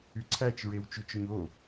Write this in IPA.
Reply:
y ǀʰ æ t͡ʃ ɹ e w t͡ʃ y t͡ʃ ɵ ɲ o

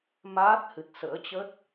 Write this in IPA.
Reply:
m aː˦˥ t̚ h ɨ˨˩ t̚ s ə̰ː˧˥ t͡ɕ ə˦˥ t̚

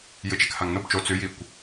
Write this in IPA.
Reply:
j ɨ t͡ʃ e k h a ŋ n o b t͡ʃ o t͡s ʉ j i kʷ

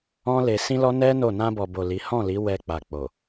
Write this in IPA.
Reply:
ɔ̃˦ l e˧ s ĩ˦ l ɔ˦ n ɛ˦ n o˦˨ n ã˧ b ɔ˨ b o˨ l i˨˦ h ɔ̃˦˨ l i˨˦ w ɛ˧ k͡p a˨ k͡p o˨

